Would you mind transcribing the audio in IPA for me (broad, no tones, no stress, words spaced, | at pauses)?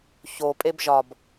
çopʼeb ʒɒb